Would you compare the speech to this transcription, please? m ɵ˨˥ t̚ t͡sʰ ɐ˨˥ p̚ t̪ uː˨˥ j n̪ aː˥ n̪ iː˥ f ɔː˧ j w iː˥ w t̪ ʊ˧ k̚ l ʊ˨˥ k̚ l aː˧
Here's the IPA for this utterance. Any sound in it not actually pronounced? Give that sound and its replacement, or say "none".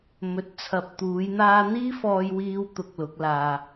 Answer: ɐ˨˥ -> ɐ˧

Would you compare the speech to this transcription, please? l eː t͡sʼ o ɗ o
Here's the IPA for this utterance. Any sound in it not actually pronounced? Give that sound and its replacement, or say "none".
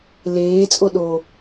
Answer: none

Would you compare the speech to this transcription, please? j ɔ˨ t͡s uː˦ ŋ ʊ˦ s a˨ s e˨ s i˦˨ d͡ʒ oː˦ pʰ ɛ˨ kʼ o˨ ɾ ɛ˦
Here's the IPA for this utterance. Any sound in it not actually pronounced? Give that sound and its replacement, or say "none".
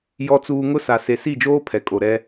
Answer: uː˦ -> uː˨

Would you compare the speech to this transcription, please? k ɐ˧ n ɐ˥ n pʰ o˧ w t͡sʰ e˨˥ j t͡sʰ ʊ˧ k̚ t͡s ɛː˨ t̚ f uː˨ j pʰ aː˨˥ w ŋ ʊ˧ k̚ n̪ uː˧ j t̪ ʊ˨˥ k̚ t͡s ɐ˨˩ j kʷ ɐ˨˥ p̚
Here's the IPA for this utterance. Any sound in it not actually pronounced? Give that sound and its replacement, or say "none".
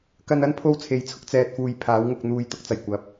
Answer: none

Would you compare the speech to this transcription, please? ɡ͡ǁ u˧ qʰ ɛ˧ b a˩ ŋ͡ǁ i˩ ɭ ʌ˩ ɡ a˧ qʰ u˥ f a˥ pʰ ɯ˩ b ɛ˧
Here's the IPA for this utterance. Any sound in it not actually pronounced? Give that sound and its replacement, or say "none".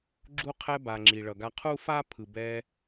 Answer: none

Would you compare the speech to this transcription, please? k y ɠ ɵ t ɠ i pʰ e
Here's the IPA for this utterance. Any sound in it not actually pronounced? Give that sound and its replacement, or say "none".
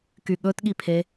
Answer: none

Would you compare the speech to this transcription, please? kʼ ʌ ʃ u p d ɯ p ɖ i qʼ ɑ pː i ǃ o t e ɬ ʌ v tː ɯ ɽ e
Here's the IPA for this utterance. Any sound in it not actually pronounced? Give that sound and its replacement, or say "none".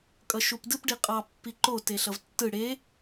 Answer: none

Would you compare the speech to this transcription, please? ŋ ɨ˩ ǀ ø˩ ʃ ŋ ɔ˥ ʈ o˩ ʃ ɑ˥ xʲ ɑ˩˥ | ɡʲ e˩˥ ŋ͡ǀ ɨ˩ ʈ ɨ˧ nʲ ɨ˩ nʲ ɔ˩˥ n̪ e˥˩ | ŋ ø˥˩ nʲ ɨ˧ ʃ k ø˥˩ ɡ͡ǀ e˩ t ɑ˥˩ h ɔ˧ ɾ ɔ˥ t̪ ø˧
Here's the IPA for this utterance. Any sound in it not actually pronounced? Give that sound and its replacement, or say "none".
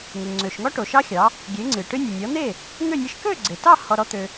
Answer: ǀ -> ŋ͡ǀ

